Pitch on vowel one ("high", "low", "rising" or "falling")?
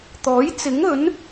rising